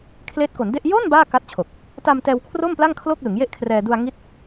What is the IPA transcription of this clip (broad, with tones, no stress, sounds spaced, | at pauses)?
kʰ l eː˦˥ t̚ k o˩˦ n d e˥˩ ʔ j o˥˩ n b aː˥˩ k a˦˥ t̚ t͡ɕʰ o˨˩ k̚ | t a˧ m t ɛː˧ w kʰ r o˥˩ m p l a˥˩ ŋ kʰ l o˥˩ k̚ l ɯ˩˦ ŋ j e˥˩ ʔ kʰ r ɛː˧ d u˧ a̯ ŋ i˦˥ t̚